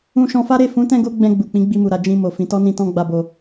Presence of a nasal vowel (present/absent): present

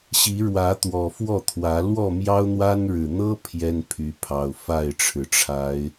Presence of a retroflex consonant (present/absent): present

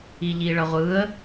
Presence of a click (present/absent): absent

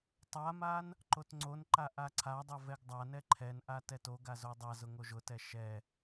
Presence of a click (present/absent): present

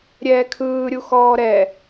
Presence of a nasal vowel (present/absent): absent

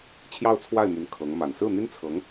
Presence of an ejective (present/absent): absent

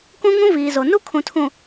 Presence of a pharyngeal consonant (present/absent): absent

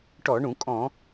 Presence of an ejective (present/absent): present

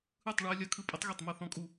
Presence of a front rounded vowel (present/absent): absent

